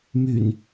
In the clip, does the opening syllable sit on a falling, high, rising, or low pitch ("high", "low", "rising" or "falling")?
low